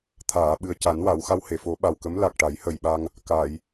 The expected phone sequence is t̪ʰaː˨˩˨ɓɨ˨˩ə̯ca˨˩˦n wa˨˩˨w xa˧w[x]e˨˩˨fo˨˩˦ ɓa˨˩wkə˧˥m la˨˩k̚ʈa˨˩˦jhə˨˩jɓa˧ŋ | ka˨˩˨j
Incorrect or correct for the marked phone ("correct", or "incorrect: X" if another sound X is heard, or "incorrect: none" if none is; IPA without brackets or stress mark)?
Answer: incorrect: h